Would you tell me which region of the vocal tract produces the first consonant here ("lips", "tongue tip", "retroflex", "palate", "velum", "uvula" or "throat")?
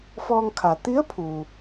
lips